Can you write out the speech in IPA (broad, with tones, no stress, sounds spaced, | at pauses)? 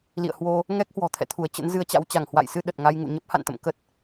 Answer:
l ḭ˧˨ ə̯ h w o˧ | ŋ ɛ˦˥ k̚ h w ɔ̤˨˩ t̪ʰ ɛ̰˧˨ t̪ʰ u˧˩ ə̯ t͡ɕ ə̰˧˥ n z ɨ˧ ə̯ t͡ɕ a̰˧˥ w t͡ɕ a˧˩ ŋ h w a̰˧˨ j s ɨ˧ ɗ ə˨˩ t̚ ŋ a˧ j ŋ ṵ˧˨ ɲ ə˦˥ p̚ h a̰˧˨ n t̪ ə̰˧˨ m k ə˦˥ t̚